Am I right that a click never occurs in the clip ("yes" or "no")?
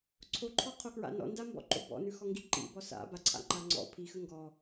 no